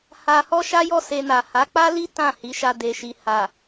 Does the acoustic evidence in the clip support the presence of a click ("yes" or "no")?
no